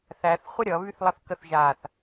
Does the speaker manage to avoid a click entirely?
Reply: yes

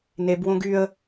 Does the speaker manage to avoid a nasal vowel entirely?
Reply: no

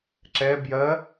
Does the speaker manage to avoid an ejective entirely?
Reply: yes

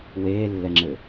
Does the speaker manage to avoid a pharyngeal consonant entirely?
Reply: yes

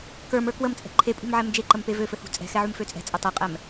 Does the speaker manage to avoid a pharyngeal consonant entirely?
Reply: no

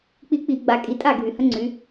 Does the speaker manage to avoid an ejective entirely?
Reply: no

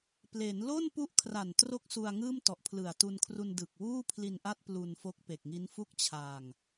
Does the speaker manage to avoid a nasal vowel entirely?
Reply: yes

